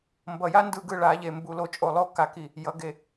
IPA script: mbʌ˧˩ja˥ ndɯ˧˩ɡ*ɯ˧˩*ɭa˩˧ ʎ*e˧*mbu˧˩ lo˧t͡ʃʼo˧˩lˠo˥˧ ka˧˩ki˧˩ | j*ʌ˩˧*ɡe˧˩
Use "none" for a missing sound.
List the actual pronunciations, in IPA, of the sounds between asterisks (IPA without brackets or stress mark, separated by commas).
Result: ɯ˧˩, e˧˩, ʌ˩˧